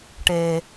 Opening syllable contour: low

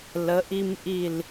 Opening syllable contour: rising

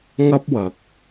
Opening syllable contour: high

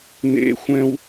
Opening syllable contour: high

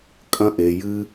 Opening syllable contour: high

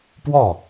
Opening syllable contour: falling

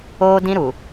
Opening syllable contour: high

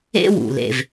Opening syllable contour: high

